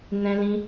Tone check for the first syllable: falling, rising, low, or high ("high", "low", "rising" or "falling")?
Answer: high